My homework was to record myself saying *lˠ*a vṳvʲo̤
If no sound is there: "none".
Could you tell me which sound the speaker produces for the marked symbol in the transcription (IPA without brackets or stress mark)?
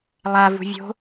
lˠ